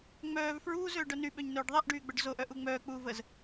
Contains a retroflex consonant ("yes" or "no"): yes